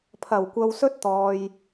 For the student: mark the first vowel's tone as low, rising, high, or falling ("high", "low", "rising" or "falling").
low